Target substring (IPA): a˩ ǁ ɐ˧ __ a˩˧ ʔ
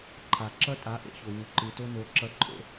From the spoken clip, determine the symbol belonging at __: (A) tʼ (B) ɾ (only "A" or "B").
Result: A